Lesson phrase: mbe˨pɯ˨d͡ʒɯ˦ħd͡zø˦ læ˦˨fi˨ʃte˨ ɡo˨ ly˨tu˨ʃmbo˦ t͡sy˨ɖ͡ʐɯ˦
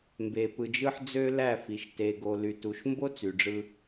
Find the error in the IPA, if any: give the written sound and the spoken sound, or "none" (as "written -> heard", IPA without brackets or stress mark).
none